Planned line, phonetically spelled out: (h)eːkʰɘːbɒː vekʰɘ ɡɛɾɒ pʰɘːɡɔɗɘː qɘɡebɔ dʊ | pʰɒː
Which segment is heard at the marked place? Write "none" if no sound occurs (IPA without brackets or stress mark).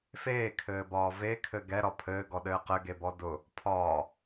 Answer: f